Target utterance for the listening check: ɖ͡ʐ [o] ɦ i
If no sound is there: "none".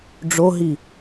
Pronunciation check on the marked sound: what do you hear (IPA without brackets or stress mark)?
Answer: o